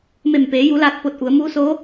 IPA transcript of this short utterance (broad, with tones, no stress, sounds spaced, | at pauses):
m e˧˩ m p eː˩˧ j u˩˧ l aː˧˩ t̚ p o˧˩ t̚ ʔ u˩˧ ə̯ m uː˧˥ s oː˧˥